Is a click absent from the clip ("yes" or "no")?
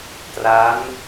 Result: yes